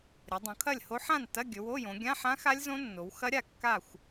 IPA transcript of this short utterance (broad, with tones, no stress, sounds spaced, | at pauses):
ɾʲ ə˩˧ dˤ õ˩˧ kʰ ɐ˥˨ lʲ h o˦˥ ħ ã˥˨ n t ɐ˧˥˧ ɡʲ ɵ˩˧ w o˧˥˧ j õ˩˧ ɡʲ ã˧˥˧ ħ ã˦˥ x a˦˥ lʲ z õ˦˥ nː o˩˧ w x ɐ˦˥ ɾʲ a˥˨ kː a˥˨ xʷ